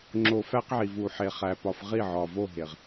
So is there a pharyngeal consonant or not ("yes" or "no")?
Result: yes